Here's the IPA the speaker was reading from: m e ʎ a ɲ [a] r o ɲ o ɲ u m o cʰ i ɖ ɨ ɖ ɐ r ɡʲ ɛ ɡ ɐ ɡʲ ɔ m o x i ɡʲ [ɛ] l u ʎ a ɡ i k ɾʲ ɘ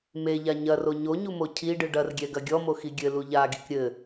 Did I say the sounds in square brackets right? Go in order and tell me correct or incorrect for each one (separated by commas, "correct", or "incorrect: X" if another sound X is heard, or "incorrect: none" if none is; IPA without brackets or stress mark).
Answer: incorrect: ɐ, incorrect: ɘ